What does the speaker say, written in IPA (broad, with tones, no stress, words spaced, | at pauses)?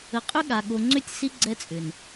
ə˨qʼʏ˦ ɠa˨ ɠo˨ŋ͡ǀʏ˦˨tʲ si˦ ɡ͡ǀɛ˦t͡sʼʏ˨n